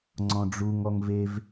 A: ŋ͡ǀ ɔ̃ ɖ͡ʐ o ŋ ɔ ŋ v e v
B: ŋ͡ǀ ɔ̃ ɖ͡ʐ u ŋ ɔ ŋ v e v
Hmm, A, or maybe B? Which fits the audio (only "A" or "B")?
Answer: B